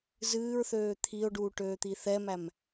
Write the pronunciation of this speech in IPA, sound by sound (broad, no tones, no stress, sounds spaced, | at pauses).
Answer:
z ɨː ɹ θ øː t̪ʰ i o̯ ɖ uː ʈ øː t̪ i θ ɛ m æ m